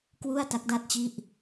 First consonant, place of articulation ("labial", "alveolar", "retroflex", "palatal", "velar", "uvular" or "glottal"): velar